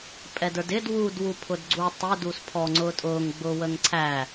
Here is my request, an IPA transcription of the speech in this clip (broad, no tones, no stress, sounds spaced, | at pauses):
pʼ ɛ d ə˞ d ɪ d w u d w u pʰ ʊ d ɡ͡ǀ u tˤ ɪ d u s pʰ ɔ ŋ͡ǀ ʊː tʼ ʊː ŋ ɡ͡b ʊː w ə ŋ ǀʰ æ